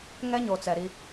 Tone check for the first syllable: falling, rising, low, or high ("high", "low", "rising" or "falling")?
high